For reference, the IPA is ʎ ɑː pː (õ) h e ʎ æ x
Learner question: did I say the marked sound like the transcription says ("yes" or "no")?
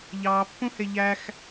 no